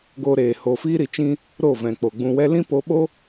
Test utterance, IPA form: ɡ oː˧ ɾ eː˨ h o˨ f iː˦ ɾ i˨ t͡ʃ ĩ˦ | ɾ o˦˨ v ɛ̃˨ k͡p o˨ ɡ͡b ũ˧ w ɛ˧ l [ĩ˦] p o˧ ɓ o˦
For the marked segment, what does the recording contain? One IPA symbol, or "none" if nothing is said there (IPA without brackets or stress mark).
ĩ˦